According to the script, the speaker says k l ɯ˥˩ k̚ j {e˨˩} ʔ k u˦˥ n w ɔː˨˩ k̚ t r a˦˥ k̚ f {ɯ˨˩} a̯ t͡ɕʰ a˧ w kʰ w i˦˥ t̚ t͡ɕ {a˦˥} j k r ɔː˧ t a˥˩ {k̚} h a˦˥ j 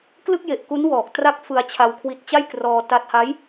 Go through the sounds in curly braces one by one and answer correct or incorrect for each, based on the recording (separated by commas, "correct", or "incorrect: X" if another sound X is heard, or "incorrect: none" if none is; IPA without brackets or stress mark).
correct, incorrect: ɯ˧, incorrect: a˥˩, incorrect: t̚